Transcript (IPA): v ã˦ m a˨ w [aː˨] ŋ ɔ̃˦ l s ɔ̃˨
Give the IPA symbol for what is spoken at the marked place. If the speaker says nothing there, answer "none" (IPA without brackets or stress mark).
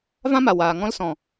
aː˨